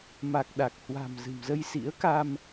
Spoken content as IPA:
m a˨˩ k̚ ɗ a˨˩ k̚ h w a̤˨˩ m z ɨ̤˨˩ m z ə˧ j s ḭ˧˥ ə̯ k a˧ m

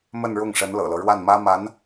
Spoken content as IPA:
m ə˥˧ n ɻ ʊ˥˩ ŋ ʂ ə˧˥ n l ɤ̰˨˩ l ɤ˦ ɻ w a˥˩ n m ä˥ m a˧˥ n

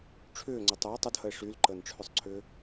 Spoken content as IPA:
ʈ͡ʂʰ ʏː ŋ͡ǀ ʏ tˤ ʏ o̯ tˤ ə d h ə e̯ ʂ y l ǃ əː n ʈ͡ʂʰ ʏ sˤ ǀʰ ʏː

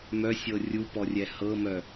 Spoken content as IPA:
m œ sʲ ɤ rʲ u p ɔ rʲ ɛ h ɤ m œ

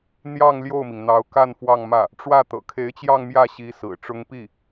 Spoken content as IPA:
n̪ j ɑ˥˧ ŋ l j o˥˩ ʊ̯ m i˩ ŋ n̪ ɑ˧˥ ʊ̯ k a˥˧ n f w ɑ˥˧ ŋ m ä˥˩ | ʈ͡ʂ w ä˥˩ t̪ ɤ̰˨˩ kʰ e˧˥ ɪ̯ t͡ɕ j ɑ˥˧ ŋ m j ä˥˩ ɕ i˧˥ s ɹ̩˨˩ ʈ͡ʂ ʊ˥ ŋ p i˥˩

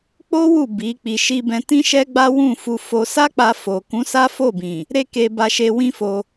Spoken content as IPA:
k͡p o˦ w u˦˨ b i˨˦ k͡p i˧ ʃ i˦ b ɛ̃˧ t ĩ˦ ʃ ɛ˦ ɡ͡b a˦ w ũ˦˨ f u˧ f o˧ s a˦ k͡p a˧ f o˨ k ũ˨˦ s a˦ f o˦˨ b ĩ˨ | ɾ e˦ k e˧ b a˧ ʃ e˧ w ĩ˦ f o˧

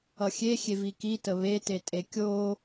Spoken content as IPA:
ʌ xʲ e xʲ e v i k i t ə β e t e tʼ e kʲ o

